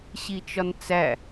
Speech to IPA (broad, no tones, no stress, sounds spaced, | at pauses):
ɕ i t͡ʃ ɒ n t͡s æ